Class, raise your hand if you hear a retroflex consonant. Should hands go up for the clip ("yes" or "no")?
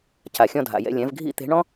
yes